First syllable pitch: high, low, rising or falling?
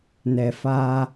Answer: low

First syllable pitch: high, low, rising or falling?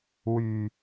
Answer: low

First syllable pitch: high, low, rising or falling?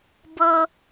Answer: high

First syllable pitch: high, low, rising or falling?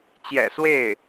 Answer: low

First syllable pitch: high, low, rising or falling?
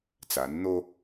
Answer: rising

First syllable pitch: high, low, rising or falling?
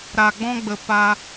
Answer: low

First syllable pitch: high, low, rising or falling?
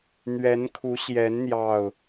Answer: rising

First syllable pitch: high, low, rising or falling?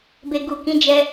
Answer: low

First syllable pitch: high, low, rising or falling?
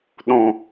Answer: low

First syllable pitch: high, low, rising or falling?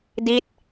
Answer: falling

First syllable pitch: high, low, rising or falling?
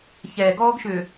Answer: low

